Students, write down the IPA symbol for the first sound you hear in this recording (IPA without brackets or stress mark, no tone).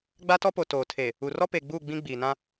ɡ͡b